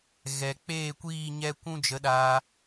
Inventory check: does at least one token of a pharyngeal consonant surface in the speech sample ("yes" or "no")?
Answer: no